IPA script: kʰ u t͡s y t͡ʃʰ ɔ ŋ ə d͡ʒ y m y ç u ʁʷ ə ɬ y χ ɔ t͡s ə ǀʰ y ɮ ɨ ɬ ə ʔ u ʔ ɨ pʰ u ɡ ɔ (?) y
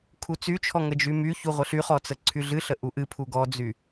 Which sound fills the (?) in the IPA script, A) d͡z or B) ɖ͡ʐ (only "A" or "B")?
A